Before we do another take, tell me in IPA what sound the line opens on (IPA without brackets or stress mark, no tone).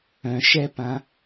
œ̃